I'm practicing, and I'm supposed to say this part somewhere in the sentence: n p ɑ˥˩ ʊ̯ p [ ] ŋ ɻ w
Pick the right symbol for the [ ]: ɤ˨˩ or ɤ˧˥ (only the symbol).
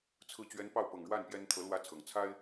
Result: ɤ˨˩